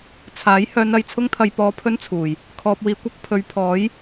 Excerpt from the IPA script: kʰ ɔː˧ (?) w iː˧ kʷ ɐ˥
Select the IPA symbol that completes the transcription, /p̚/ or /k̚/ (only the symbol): p̚